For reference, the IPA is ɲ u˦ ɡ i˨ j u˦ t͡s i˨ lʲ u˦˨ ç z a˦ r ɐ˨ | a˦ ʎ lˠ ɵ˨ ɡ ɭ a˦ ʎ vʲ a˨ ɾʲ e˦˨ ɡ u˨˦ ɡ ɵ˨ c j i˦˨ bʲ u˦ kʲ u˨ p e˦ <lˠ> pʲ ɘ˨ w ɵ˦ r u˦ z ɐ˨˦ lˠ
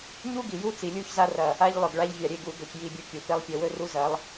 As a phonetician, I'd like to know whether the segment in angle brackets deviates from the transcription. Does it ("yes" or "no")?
no